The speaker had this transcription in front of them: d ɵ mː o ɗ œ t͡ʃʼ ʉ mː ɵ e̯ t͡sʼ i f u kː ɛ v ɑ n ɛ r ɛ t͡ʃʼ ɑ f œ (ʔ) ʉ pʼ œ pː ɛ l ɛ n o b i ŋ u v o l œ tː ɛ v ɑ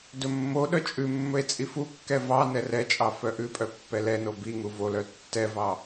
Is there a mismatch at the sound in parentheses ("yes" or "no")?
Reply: no